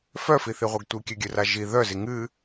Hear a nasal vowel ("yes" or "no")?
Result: no